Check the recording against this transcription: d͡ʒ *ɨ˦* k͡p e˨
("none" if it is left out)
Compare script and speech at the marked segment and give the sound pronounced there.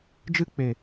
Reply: ɨ˦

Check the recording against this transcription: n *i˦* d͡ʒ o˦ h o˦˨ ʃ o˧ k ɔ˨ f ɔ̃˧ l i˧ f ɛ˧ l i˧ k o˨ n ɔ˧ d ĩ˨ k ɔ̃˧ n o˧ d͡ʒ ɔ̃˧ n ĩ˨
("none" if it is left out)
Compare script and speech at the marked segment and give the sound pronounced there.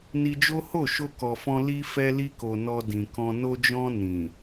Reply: i˧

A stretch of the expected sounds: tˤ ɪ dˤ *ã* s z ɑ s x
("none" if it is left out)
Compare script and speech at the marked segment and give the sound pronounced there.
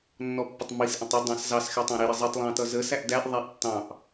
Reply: ɑ̃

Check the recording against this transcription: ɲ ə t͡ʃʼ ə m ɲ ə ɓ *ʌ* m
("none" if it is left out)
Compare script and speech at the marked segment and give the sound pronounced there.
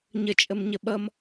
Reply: ʌ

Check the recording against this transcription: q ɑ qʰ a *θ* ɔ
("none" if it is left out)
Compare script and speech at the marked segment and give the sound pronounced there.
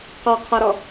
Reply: ɾ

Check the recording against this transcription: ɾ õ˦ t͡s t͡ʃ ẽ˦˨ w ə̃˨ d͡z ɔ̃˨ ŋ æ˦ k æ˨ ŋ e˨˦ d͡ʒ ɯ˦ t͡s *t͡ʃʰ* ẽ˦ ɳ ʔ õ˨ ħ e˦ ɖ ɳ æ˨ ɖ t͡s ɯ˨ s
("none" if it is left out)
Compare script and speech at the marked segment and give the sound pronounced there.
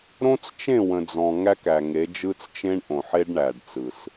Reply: t͡ʃ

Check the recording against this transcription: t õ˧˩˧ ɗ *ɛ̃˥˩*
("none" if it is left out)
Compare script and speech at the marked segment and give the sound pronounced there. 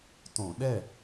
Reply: ɛ˥˩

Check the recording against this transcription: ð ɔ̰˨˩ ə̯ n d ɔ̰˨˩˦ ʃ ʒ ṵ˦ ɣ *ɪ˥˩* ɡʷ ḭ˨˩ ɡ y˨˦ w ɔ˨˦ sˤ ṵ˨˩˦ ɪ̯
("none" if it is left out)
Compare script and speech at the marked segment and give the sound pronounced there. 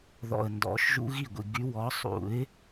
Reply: i˥˩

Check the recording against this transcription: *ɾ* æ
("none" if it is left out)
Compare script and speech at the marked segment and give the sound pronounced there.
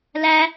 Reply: l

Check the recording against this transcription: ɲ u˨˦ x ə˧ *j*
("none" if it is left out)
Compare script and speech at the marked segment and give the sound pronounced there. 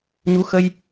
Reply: j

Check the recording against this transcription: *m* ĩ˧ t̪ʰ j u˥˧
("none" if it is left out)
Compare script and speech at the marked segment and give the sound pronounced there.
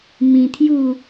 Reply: m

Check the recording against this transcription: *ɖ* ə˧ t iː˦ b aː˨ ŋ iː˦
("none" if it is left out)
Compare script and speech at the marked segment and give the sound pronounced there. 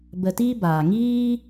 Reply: b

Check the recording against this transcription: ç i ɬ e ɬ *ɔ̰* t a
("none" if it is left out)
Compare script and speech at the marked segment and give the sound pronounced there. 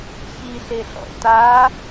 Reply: ɔ̰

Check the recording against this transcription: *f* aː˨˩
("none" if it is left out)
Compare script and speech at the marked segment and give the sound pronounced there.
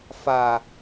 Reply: f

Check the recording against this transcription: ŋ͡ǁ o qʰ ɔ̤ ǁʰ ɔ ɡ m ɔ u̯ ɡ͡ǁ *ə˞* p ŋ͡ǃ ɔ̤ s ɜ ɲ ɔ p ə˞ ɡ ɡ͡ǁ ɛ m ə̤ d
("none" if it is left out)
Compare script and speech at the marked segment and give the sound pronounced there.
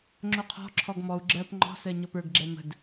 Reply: ɜ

